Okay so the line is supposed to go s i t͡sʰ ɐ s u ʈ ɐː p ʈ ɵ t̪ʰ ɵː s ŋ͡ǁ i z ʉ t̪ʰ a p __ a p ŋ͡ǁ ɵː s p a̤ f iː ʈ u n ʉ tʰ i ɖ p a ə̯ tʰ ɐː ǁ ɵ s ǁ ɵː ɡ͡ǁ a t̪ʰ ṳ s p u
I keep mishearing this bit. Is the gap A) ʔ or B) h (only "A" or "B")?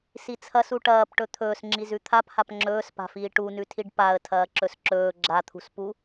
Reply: B